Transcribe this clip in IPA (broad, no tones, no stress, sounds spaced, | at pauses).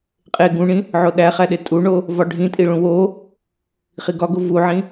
qʼ e ɡ ũ ɳ ĩ | ʕ o ɗ æ χ æ ɗ e tʼ u ɳ o | v ɒ ɖʱ ĩ tʼ i ɭ ũ w o | χ i ɡ ɒ ɡ o v u ʕ ĩ